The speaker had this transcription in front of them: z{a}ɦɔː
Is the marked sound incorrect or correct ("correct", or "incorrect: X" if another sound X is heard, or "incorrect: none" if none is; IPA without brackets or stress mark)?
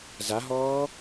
correct